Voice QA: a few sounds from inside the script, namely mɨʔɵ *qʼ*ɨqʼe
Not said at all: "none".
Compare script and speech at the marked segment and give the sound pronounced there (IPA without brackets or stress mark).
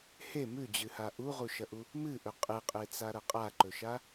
qʼ